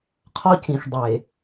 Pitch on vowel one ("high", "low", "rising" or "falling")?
high